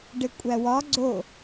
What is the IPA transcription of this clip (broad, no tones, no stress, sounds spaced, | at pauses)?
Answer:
ɖ e kʷʼ æ w ɒ ɡ͡ǀ o